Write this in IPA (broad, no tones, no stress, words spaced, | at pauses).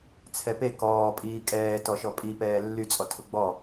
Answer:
t͡sʰɛpe kɔː pʼiːkʼɛːtɔ ʃɔpʼipɛː lːyt͡sʼɔ tʰʊɡ͡bɔ